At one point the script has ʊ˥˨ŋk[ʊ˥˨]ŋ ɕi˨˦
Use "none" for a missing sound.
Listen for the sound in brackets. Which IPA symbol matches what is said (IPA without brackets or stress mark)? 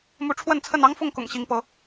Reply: ʊ̰˨˩